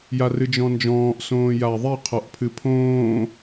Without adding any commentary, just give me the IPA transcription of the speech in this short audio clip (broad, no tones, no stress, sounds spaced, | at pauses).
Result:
j a r ɨ d͡ʒ ɔ̃ n d͡ʒ ɔ̃ː ʔ s õː j a ðˤ i qʰ ɔ ʔ pʰ ɨ pʰ õː